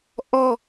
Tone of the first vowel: high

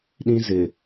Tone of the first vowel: high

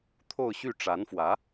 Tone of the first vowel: falling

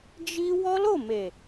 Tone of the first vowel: high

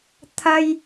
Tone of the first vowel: high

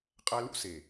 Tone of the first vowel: high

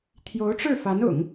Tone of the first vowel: rising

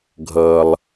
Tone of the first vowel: low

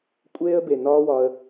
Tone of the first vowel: high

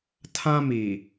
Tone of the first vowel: high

